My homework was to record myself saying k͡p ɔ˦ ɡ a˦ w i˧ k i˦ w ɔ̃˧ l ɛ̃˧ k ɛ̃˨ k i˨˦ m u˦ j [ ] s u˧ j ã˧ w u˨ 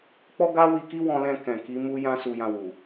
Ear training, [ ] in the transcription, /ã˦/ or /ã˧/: ã˦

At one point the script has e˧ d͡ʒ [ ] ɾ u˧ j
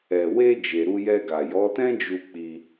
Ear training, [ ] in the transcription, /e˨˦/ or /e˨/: e˨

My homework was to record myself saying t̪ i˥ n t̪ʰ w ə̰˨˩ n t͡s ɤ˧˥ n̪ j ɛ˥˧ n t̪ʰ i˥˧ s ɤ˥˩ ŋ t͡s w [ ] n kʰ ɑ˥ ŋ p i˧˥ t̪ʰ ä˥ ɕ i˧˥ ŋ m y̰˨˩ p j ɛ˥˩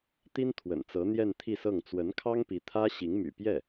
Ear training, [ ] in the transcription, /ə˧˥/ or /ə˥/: ə˧˥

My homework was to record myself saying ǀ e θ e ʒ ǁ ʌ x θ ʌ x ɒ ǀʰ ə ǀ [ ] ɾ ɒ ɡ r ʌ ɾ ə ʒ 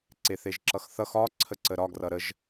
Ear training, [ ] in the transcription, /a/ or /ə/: ə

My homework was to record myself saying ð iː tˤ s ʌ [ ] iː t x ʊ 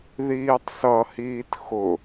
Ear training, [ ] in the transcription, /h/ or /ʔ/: h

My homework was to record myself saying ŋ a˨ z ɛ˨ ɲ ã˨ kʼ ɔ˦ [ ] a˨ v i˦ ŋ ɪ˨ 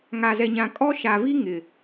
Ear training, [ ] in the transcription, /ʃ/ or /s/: ʃ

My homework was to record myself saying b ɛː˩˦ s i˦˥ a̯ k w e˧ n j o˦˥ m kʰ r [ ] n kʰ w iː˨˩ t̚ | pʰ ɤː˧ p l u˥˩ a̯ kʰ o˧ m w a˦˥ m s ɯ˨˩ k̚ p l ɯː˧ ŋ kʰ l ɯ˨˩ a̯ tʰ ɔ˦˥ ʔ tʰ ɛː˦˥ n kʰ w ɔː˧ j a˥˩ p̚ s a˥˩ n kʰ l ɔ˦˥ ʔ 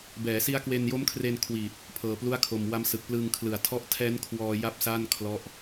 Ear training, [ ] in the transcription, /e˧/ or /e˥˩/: e˧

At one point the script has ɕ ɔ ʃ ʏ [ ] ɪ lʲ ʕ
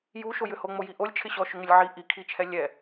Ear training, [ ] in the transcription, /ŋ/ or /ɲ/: ŋ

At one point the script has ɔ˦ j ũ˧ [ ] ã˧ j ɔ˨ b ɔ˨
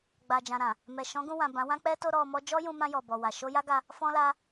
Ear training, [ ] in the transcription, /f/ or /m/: m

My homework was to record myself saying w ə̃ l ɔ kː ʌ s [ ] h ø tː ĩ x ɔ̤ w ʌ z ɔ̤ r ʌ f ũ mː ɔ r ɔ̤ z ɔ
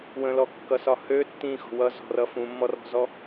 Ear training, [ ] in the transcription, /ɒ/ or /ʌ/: ɒ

